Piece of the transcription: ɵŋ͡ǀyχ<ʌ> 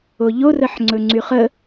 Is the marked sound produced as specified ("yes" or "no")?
no